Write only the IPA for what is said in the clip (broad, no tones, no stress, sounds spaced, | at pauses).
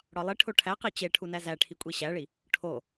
ɽ ɒ lˠ i ʈʰ o ʈʰ æ q i t͡ɕ e ʈʰ u n æ z æ ʈʰ i kʷʼ i ɕ æ ɭ i | ʈʰ o